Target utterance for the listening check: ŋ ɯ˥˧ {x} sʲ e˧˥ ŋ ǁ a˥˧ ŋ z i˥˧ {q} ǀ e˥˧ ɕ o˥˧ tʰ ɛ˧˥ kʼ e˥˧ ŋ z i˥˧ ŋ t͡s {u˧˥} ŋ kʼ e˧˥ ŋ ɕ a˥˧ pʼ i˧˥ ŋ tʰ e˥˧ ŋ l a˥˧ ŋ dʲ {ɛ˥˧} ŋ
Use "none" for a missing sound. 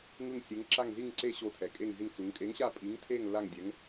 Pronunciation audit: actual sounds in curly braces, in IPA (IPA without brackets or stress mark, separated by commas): ŋ, ŋ, u˧˥, ɛ˧˥